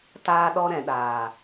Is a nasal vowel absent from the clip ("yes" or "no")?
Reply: no